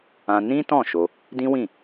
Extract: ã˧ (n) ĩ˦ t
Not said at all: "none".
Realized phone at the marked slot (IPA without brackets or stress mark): n